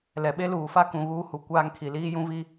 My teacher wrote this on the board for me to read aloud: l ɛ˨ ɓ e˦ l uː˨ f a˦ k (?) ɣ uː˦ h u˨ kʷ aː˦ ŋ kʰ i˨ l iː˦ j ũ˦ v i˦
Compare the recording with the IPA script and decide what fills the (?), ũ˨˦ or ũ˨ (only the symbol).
ũ˨˦